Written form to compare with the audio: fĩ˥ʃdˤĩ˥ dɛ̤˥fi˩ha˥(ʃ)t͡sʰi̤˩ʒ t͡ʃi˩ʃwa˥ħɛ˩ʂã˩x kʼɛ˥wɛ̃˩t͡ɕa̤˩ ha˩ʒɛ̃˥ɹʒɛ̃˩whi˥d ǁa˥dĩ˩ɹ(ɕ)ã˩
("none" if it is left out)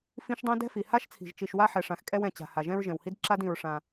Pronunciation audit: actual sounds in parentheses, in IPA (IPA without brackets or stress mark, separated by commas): ʃ, ʂ